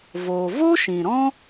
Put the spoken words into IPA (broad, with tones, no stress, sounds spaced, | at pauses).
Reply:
v o˧ v o˦ ʃ ĩ˨ ɾ ɔ̃˦